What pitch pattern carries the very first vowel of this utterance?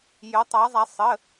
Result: rising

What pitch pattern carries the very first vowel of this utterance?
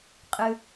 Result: low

